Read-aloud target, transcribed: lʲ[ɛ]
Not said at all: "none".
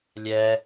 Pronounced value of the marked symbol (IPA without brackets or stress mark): ɛ